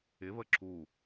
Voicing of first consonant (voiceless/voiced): voiced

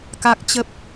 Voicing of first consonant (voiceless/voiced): voiceless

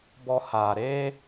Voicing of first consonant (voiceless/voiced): voiced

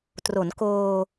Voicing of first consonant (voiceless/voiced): voiceless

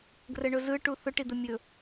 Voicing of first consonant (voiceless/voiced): voiced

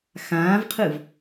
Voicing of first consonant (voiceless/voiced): voiceless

